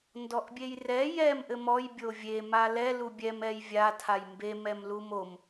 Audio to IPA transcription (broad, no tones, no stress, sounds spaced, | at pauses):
n d ɔ ʔ bʲ e j r ɛ j ɛ m ʔ ɘ m ɔ j bʲ o vʲ e m a l ɛ l u bʲ ɛ m ɛ j vʲ a tʰ a j m b e m ɛ m l u m o m